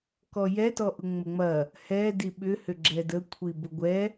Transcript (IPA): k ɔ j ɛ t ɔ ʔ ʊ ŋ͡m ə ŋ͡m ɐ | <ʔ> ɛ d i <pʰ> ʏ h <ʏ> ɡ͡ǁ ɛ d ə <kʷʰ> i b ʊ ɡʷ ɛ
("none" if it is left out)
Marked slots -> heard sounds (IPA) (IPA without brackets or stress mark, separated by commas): h, ɓ, ʏ, kʷʰ